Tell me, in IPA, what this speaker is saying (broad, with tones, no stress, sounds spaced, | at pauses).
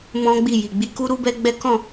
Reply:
m ɔ̃˦ ɡ͡b i˦˨ j i˨ ɡ͡b i˧ k u˦ ɾ u˦ b ɛ˦ ɡ͡b ɛ˦ k ɔ̃˦˨